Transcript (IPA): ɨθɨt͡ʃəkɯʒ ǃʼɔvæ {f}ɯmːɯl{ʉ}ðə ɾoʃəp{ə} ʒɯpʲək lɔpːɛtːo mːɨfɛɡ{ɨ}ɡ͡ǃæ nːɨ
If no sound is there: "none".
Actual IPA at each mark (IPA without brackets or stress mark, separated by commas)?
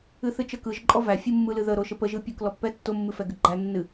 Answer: fʲ, ɨ, ə, ɨ